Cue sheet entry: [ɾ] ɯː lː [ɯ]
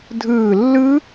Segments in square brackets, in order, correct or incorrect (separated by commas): incorrect, correct